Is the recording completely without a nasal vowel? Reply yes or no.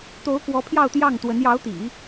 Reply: yes